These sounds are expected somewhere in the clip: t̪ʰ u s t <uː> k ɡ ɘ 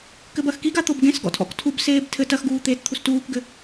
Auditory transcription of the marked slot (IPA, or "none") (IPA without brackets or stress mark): uː